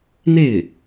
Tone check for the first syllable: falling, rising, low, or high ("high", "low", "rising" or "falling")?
falling